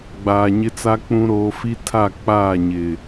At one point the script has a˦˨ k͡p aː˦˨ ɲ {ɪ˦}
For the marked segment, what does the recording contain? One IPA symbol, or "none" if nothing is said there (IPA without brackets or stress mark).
ɪ˨